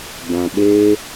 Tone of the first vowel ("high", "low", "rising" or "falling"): low